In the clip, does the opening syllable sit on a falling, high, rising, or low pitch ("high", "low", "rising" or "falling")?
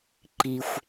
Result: low